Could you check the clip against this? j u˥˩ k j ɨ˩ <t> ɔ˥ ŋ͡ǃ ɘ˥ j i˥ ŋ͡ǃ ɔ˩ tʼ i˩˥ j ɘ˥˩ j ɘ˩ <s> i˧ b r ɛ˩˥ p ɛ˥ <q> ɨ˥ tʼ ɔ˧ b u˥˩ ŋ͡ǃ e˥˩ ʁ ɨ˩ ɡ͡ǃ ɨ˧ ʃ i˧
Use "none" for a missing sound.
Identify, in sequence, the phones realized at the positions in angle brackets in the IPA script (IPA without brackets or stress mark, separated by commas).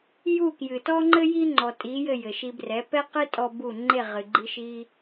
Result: t, ʃ, q